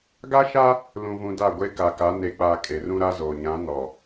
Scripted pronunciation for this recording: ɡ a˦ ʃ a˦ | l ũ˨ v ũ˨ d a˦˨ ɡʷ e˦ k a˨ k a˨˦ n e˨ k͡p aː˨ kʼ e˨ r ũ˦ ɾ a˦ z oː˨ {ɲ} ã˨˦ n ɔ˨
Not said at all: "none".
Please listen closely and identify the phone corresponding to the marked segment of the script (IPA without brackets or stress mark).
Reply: ɲ